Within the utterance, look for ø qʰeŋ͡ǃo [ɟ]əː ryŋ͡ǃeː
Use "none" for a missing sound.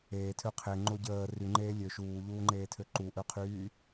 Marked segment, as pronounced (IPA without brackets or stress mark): ɟ